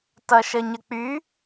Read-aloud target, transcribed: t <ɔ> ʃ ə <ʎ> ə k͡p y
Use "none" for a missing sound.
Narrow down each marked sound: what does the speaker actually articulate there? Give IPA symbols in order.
ʌ, ɲ

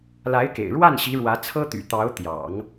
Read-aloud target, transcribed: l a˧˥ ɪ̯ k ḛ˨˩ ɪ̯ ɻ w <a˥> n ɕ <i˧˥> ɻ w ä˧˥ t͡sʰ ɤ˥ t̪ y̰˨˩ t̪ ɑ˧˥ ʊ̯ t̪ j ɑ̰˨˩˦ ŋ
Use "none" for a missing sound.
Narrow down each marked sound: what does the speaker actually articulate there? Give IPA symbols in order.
a˥˩, i˧˥

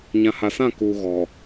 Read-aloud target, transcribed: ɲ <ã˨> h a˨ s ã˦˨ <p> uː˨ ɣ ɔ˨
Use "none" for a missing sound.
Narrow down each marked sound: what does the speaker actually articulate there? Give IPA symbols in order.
ã˨, k

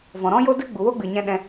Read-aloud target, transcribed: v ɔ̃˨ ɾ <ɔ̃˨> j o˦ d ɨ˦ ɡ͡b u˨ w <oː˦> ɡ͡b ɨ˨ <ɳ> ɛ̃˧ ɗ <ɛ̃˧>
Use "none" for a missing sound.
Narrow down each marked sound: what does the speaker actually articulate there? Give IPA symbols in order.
ɔ̃˦, o˦, ɲ, ɛ̃˧

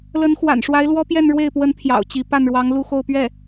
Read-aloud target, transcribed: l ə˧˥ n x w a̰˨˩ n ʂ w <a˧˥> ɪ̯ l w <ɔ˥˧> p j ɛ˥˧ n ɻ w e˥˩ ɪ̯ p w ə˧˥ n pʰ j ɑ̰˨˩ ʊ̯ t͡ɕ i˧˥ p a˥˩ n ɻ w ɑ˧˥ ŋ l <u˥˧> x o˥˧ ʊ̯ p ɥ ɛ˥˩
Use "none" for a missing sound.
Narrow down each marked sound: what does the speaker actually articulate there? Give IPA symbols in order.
a˧˥, ɔ˥, u˥˧

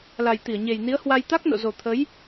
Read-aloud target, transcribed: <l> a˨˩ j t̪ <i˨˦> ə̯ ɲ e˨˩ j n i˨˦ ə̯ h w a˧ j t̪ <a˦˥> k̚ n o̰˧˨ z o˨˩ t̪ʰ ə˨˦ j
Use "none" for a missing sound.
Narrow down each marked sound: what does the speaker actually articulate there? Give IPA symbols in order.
l, i˧˩, a˦˥

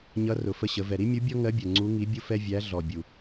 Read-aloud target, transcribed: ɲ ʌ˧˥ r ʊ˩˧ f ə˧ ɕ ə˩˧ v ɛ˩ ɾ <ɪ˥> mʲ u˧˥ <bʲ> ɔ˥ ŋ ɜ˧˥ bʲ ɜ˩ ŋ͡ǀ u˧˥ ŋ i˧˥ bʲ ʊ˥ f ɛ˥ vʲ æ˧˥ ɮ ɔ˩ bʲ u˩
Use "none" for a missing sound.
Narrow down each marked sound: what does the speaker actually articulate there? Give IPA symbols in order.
i˥, bʲ

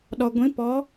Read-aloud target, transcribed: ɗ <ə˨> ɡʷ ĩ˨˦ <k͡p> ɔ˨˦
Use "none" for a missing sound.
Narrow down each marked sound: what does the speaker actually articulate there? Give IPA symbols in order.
ɔ˨, p

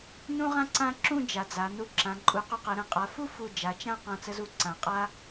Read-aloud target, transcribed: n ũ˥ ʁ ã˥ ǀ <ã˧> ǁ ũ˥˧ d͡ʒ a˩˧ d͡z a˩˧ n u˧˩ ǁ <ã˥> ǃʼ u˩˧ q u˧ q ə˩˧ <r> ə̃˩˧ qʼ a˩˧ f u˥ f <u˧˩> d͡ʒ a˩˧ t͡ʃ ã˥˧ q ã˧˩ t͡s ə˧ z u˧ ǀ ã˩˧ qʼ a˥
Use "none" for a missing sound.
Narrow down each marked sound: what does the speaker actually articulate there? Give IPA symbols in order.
ã˥, ã˩˧, ɾ, u˧˩

